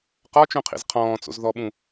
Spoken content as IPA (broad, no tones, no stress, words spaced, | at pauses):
qɒt͡ʃũqʰḭz qʰɔ̃ːt͡so̰z ðɔɓũ